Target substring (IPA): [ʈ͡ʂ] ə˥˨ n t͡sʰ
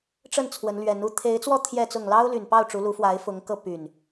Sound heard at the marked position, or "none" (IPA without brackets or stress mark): ʈ͡ʂ